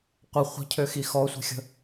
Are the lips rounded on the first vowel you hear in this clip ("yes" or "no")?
no